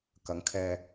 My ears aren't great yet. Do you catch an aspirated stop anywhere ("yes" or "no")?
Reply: yes